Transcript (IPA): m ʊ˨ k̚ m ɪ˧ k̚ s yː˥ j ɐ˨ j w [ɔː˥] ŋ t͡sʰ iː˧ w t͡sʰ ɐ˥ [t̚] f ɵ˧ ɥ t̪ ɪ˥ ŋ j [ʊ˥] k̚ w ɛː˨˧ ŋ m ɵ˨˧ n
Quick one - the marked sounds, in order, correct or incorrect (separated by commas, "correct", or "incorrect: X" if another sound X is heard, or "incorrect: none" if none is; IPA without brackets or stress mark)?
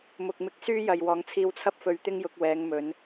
incorrect: ɔː˨, incorrect: p̚, incorrect: ʊ˨˥